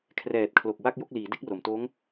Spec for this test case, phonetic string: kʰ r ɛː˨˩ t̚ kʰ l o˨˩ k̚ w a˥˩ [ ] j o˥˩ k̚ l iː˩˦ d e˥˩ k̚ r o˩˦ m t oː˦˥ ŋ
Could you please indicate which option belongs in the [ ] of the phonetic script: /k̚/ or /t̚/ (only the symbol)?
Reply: k̚